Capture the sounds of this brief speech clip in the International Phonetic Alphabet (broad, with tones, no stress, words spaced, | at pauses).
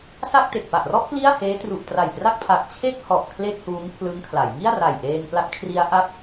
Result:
sa˥˩k̚ te˨˩k̚pa˨˩ʔrɔ˥˩ʔ pli˥˩a̯heː˦˥tru˨˩ʔ tra˨˩jpra˥˩k̚pʰa˨˩k̚ t͡ɕʰe˥˩k̚ hɔ˨˩ʔ kʰle˥˩k̚huː˦˥ŋpʰlɯ˦˥ŋkʰla˩˦j ŋi˥˩a̯ra˨˩j ʔeː˧ŋpla˦˥t̚kʰri˦˥a̯ ʔa˦˥k̚